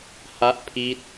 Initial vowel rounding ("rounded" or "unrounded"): unrounded